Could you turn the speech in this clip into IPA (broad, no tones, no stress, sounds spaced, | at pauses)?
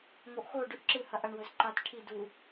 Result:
ŋ o ʔ x o ɖ ʉ ʔ ǁ ɨ h ɐ ʔ ɐ ɳ w ɵ z ǃ a t ʈʰ i d u